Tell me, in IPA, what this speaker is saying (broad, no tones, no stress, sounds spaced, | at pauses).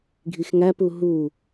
ɡʱ i x ŋ æ p u ɦ u